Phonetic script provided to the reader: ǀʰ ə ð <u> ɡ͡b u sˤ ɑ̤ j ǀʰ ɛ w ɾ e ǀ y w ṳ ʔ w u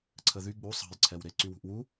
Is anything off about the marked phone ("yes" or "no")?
yes